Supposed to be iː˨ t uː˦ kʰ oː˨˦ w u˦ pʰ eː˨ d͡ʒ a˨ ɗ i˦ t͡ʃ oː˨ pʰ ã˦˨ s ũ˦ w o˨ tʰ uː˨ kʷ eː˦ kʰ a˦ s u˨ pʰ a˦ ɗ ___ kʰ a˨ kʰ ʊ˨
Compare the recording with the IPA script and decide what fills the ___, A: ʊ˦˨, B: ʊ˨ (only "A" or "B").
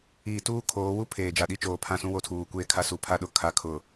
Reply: B